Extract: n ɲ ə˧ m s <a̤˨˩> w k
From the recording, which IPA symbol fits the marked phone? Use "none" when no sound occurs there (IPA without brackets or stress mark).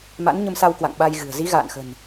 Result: a˧